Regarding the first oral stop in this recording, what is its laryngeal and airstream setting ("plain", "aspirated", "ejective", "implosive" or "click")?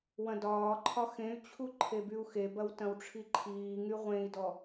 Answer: plain